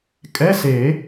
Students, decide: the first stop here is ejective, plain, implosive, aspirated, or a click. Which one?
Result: ejective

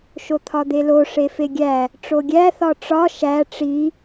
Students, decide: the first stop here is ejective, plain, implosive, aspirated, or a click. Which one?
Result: aspirated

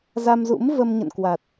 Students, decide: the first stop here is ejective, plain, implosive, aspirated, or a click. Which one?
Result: plain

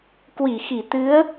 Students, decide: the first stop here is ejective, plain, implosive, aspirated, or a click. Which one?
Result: plain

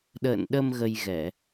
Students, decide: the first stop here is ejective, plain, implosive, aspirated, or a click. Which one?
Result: implosive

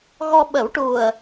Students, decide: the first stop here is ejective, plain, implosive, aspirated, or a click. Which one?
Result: implosive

